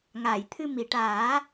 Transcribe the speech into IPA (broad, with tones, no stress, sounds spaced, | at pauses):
ŋ aː˨˩˨ j t̪ʰ ɨ˧ m i˨˩˨ ʈ aː˨˩˦